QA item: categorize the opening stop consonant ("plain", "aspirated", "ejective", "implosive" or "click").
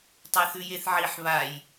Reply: plain